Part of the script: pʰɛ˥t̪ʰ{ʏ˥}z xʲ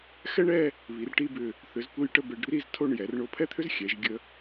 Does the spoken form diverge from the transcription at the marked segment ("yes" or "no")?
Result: no